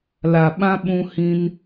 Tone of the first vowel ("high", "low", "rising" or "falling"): low